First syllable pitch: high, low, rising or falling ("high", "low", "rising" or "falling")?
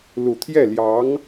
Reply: low